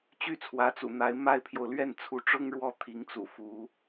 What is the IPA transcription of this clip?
t͡ɕ y˥˩ t͡sʰ w ä˧˥ t͡s ṵ˨˩ n̪ a˧˥ ɪ̯ m a˥ ɪ̯ pʰ j o˨ ʊ̯ l ɥ ɛ˥˩ n t͡sʰ u˧˥ ʈ͡ʂ ʊ˥ ŋ ɻ w ɔ˥˩ t̪ʰ i˧˥ ŋ t͡s ṵ˨˩ f u˧˥

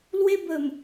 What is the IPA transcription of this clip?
l w e˧ b ə˨˩ m

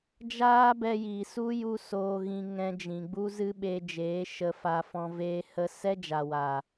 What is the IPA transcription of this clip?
d͡ʒ aː˦ b ɛ˧ j iː˨ s u˦ j u˦ s oː˧ ɣ ĩ˧ ŋ ɛ̃˧ d͡ʒ ĩ˨ ɡ͡b u˦ z ɨ˦ ɓ e˧ d͡ʒ eː˨˦ ʃ ə˧ f a˧ f ɔ̃˧ v eː˦ h ə˦ s ɛ˦ d͡ʒ a˨ w aː˨

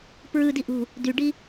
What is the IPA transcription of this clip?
p ɹ ɯ d i ʔ ṳ | d y ɖ i

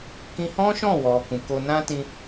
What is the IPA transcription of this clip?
k ĩ˧ h ɔ̃˦ ʃ ɔ̃˦˨ w ɔ˨ k ũ˨ k o˧ n ã˦ t ĩ˦

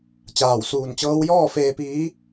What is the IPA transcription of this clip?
t͡ɕ aː˧˩ w s uː˧˩ n t͡ɕ ɤː˧˥ w j ɔː˥˨ f eː˧ p iː˧˥

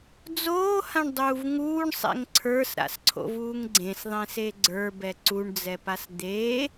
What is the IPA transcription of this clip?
d͡z oː h ã ɳ dˤ uː v ŋ uː ɳ sˤ ɛ̰ ŋ ǀʰ ə˞ s ɾ a̰ s ǀʰ o̰ v uː ŋ ɡ͡ǀ ẽ s ðˤ ẽ s e ɡ͡ǀ ə˞ b ɛ ǀ u ɳ d͡z ɛ p a s d̪ eː

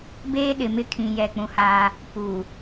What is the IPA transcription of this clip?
b eː˦ ɗ ɪ˨ m ɪ˦ kʰ ĩ˨ j ɛ˨ k͡p ũ˨ h a˦ | p u˨

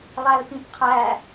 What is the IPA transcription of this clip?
lˠ æ l p ĩ p qʰ æ

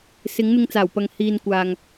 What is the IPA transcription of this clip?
s ɪ˨˥ ŋ n̪ ɪ˧ ŋ t͡s aː˨˩ w p ɐ˨ ŋ h iː˨ n kʷ aː˨ ŋ

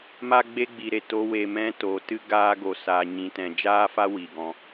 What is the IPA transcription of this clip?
m a˦ ɡ͡b e˦ ɡ͡b i˧ ɾ e˨ t o˦ w e˧ m ɛ̃˦ t o˨˦ t ɨ˦ ɡ aː˦ ɡ o˧ s aː˧ ɲ ĩ˧ t ɛ̃˧ d͡ʒ aː˦ f a˦ w i˨ ɡ ɔ̃˧

